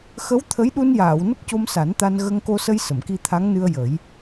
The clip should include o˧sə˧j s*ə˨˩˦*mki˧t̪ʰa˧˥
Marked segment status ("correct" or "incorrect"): incorrect